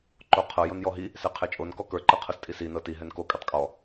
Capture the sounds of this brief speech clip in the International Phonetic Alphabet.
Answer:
ǃoqʰɤ jonjɔɦi | sɛqʰɛt͡ʃʼon kɔkə˞ǃɤqʰɤs tʼisinɤ tiɦɛn ko kʼɛtˤkʼɔ

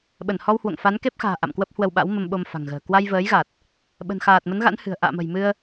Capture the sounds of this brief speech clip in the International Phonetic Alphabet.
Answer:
ɓə˧˩nhɔ˧whwo̰˧˨ŋ fa˨˦nke˦˥p̚xa̤ː˨˩ ʔa̰˧˨mkwə˦˥p̚hwə˧wɓa̰˧˥w mə˧mɓo˧mfa̤˨˩ŋɣə̤ː˨˩ kwa˧jvəː˨˦jɣa˨˩t̚ | ɓə̤˨˩nxaː˨˩t̚mə˨˦nɣa̰˧˥n hɨ̤˨˩ə̯ ʔa̰ː˧˨mə̤˨˩j mɨ˧ə̯

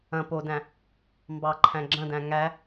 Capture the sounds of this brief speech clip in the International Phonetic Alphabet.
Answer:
ɐ̃ podæ̃ | mbɑǃʰæ̃ ɡ͡ǁɐ̃dæ̃ ŋæ

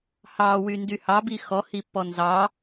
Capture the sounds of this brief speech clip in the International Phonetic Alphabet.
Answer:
hɑ wyndyhɑ bixɔ hipːɔnzɑ

